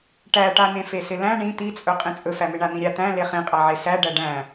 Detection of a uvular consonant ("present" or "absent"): present